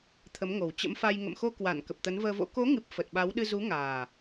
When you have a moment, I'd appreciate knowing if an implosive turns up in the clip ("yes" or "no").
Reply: yes